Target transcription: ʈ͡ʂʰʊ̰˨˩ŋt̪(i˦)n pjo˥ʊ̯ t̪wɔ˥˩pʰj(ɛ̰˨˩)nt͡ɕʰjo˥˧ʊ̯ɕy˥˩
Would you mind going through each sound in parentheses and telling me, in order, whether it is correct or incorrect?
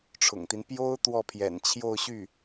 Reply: correct, correct

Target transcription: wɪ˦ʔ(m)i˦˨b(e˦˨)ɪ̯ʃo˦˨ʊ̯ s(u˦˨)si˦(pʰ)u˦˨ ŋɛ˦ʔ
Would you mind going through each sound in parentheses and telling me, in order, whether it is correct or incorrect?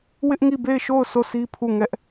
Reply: incorrect, correct, incorrect, correct

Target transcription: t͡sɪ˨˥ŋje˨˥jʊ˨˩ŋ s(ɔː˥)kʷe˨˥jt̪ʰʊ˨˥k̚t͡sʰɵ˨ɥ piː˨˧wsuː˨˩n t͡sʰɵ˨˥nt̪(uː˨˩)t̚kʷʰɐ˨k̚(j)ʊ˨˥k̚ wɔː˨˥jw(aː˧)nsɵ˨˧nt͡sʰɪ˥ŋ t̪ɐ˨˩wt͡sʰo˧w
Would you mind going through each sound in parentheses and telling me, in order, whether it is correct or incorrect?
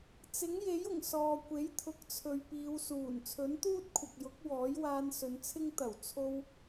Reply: incorrect, incorrect, correct, correct

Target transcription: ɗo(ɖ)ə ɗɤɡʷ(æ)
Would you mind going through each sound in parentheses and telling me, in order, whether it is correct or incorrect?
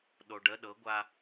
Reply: correct, incorrect

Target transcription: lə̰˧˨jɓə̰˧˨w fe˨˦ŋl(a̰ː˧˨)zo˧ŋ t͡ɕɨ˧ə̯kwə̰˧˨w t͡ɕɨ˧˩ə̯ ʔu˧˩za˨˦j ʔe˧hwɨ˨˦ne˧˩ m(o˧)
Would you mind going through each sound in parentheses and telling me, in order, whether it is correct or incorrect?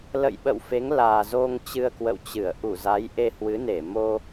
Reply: incorrect, correct

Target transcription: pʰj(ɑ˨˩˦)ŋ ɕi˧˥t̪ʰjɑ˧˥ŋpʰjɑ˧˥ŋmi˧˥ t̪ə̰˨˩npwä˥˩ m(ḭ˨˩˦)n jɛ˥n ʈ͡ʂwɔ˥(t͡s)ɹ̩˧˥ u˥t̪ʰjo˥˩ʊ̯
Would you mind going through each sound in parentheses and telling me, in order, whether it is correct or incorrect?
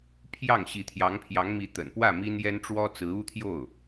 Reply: incorrect, incorrect, correct

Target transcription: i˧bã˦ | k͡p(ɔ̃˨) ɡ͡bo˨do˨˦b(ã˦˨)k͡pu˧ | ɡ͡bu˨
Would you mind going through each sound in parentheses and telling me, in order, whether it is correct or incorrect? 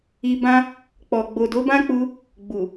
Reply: incorrect, incorrect

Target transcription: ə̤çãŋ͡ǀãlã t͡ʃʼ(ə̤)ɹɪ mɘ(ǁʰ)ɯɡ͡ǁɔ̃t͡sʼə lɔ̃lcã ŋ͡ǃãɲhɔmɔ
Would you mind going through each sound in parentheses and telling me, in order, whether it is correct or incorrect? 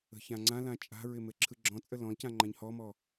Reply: incorrect, correct

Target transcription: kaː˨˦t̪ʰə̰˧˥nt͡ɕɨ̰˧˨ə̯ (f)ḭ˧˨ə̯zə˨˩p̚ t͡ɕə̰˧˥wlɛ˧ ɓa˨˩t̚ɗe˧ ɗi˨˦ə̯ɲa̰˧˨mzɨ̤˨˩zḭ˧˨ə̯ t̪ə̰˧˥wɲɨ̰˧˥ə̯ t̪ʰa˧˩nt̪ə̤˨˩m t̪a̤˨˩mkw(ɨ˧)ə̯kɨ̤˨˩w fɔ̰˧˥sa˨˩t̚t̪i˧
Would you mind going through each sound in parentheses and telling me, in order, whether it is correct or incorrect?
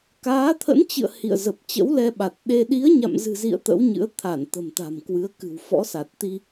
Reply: incorrect, incorrect

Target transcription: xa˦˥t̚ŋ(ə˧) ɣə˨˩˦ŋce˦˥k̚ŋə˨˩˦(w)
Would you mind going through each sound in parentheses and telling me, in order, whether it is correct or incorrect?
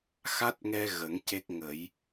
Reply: incorrect, incorrect

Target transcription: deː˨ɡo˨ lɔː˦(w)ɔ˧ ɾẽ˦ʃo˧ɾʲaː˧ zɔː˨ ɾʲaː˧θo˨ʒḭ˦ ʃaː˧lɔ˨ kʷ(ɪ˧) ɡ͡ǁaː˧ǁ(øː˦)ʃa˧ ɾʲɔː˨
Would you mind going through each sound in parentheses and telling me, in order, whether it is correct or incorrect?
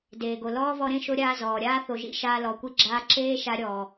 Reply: incorrect, incorrect, incorrect

